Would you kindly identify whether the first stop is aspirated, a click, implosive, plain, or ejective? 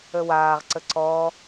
click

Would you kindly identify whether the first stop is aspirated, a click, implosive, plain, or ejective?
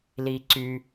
click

